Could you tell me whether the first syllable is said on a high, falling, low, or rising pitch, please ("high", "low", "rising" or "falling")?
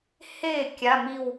falling